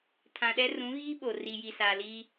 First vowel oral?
no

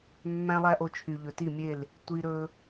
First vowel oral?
no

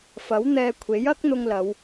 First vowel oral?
yes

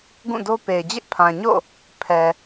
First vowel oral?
no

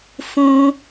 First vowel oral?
no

